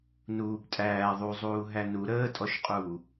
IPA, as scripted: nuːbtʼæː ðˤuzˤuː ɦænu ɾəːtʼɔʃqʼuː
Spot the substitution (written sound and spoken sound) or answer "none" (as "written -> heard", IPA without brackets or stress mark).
none